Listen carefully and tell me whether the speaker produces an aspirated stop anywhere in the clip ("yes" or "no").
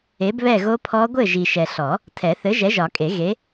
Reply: yes